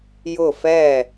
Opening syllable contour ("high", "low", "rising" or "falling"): falling